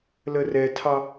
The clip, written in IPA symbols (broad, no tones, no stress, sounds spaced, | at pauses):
l ə r ɛ tʰ ɑ